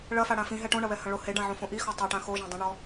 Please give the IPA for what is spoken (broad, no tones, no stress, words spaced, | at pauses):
ɭɐfa ɽãfĩ ɦɛʈõɳɐ βɛhɐ̃ɭo heɖãʕõ fõʔi xɔtˤaʈã xoʒẽ dˤĩɳɔ